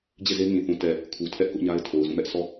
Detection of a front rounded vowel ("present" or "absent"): absent